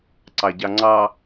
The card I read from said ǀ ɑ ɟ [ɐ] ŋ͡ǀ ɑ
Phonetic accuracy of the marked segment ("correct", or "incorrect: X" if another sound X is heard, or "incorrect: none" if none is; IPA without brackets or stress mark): incorrect: ɑ